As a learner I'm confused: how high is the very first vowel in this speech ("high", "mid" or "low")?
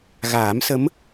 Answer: low